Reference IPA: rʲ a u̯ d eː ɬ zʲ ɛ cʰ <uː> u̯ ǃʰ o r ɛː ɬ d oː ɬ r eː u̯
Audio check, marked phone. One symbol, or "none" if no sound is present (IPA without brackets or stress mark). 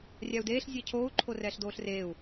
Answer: oː